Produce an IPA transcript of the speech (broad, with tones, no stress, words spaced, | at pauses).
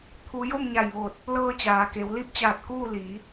t̪ʰu˧˥ jo˥˨mɲa˧˩jʋo˧˩t̚ | lɤː˧t͡ɕaː˩ke˩˧w li˥˨p̚t͡ɕaː˧˩t̚ kuː˥˨ li˩˧